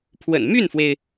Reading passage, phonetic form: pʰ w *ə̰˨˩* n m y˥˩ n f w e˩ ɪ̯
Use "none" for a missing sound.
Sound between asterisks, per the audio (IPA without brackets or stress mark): ə̰˨˩